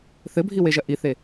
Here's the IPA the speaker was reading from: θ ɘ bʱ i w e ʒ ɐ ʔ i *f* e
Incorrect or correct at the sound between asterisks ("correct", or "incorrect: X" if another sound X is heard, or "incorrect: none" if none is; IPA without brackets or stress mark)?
incorrect: θ